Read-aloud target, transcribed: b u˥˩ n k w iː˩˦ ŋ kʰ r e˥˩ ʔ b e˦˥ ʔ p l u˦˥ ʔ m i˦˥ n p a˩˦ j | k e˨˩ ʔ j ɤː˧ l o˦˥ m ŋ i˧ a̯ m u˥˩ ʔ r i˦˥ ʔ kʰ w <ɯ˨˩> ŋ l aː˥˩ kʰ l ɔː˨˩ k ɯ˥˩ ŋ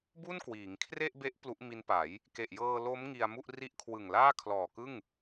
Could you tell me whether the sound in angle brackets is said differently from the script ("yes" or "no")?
no